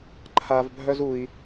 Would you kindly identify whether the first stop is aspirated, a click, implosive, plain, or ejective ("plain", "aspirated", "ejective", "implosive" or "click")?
click